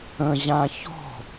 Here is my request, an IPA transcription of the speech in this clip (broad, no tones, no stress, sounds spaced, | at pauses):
ə̃ ʑ ã ç ɔ̤